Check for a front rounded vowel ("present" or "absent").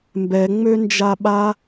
present